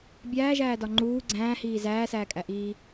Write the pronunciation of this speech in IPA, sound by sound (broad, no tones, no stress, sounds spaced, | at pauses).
bʲ æː ʒ æː d ɒ ŋ͡ǃ uː ɡ͡ǀ æ̃ː h iː z æː s æː kʼ æ ʔ iː